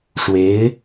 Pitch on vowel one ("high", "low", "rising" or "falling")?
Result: rising